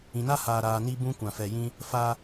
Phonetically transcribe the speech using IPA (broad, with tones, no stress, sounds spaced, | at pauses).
ĩ˨ n a˦ h aː˨ ɾ aː˨ n i˦ b ũ˦ kʷ ã˨ f ɛ˨ j ĩ˦ | f a˦